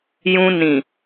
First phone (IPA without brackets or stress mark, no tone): j